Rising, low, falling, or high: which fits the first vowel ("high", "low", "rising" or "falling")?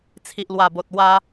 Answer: low